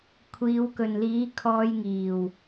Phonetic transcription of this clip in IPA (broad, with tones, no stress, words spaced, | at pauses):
kʷʰiː˨˧wkɵ˨nliː˨˥ kʰɔː˧jŋiː˨˩w